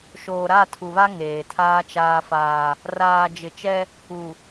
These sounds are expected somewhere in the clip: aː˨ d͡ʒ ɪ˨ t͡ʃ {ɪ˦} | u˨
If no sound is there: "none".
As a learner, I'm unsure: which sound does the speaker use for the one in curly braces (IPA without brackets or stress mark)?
ɛ˦